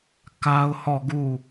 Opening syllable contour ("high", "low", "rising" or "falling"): high